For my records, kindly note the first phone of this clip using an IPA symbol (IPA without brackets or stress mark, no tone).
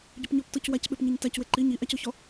ɟ